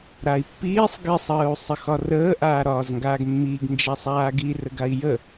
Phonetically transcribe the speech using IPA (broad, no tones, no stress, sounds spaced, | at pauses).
ɾ a i̯ pː iː sˤ ɡ i sˤ əː u̯ sˤ ə x ɒ r əː ʔ aː ɾ ɒː z ŋ ɡ aː ɡ mː iː ɡ n d͡ʒ a sˤ aː ɡ i r ə ɡ a i̯ j ə